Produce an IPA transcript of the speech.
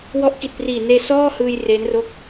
w ɔ˦˥ ʔ k i˨˩ t̚ p r iː˨˩ n eː˧ s ɔː˥˩ h ɯː˧ j r e˦˥ n r o˥˩ k̚

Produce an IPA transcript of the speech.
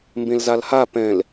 m b ẽ l z a l h a p ɛ̃ l

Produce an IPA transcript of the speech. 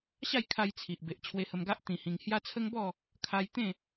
ɕ a˥˧ j kʰ a˧ j t͡sʰ i˨ ʔ b e˨ ʔ t͡ɕʰ w e˧ h ə˧ m ɡ a˦ ʔ t̪ ĩ˧ h ĩ˧ ŋ h j a˦ t͡sʰ ə˦ ŋ b ɔ˥˧ | kʰ a˧ j t̪ ẽ˥˧

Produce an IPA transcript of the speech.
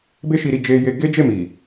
b e˦ ʃ i˧ ɾ i˧ d͡ʒ e˧ j e˧ ɡ e˦ d͡ʒ e˦˨ m i˨

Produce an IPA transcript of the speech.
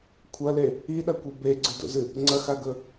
kʷʰ ɐ l e | i ɗ ɐ kʷ e b e ɡ͡ǀ ɨ d o̰ z ɨ | ŋ͡ǀ ɐ x a ɡ ɵ

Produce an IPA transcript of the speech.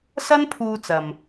s ɐ˥ n pʰ uː˧ t͡s ɐ˨ m

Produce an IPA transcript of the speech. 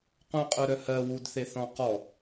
q ũ qʼ œ ɾ œ h ɜ w u d θ e θ ɔ̃ q ɔ

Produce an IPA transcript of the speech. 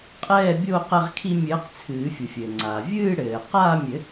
qʼ ɛː˥˧ bʲ o˥˧ q ɛ˥˧ ʁ kʰ i˥ mʲ ɘː˧˥ q t͡sʰ ɨː˨˩˦ fʲ u˩ fʲ ɘː˩ ŋ͡ǀ aː˩ vʲ ɨː˥˧ ɽ ɘː˩ q aː˥˧ mʲ ɘ˨˩˦

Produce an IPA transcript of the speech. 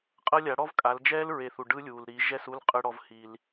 qʼ ɤ˦ lʲ a˨˦ ɽ ɔ˦ v kʼ a˨˦ l d͡ʒ ɛː˦ l ɹ e˨ θ u˨ ɖ ɯ˦ lʲ uː˨ l ɾ i˨˦ ʒ ɛ˦˨ s u˦ l qʼ ɯ˦ ɽ ɔ˦ v h i˦ l

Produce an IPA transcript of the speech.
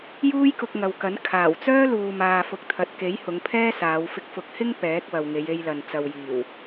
j uː˥ j k ʊ˧ k̚ ŋ ɐ˨ w k ɐ˨˥ n kʰ aː˨˩ w t͡s œː˥ l uː˨ m aː˨ f ʊ˨ k̚ t̪ʰ ɐ˨ t̚ k e˨˥ j h ʊ˨˧ ŋ pʰ ɛː˥ s aː˨˧ w f ɪ˧ k̚ f ʊ˨˥ k̚ h ɪ˥ ŋ p ɛː˨˥ k̚ w ɐ˨ w ŋ e˨˧ j e˧ j l ɐ˨ n t͡s ɐ˨ w j iː˨˩ w

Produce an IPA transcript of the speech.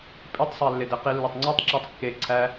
pʼ i tˤ sˤ æ lː e d e q i lː o tˤ ŋ͡ǀ ɒ tˤ ǁ æ tˤ kː e ǀʰ æ

